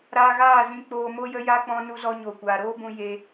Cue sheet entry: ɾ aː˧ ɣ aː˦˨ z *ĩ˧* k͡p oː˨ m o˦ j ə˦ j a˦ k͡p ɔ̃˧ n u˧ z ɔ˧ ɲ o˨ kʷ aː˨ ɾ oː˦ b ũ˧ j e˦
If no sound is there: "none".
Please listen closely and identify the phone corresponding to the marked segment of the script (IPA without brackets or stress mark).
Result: ĩ˨